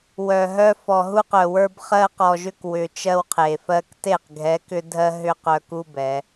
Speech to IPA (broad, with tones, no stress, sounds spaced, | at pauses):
w œ˨ ɦ œ˦ f ɔ˨ ɦ u˦ q œ˨ w ə˞˦ b χ ɜ˦ q ɔ˨ ʒ ʏ˦ k w ʏ˨ t͡ʃ ɜ˦ w qʰ e˨ f ɜ˦ k t e˦˨ q ɡʱ ɛ˨˦ k ʏ˦ dʱ ɜ˦ ɦ ʏ˦ q œ˦ k u˦ b ɛ˨˦